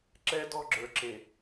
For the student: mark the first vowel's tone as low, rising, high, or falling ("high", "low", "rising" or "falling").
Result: high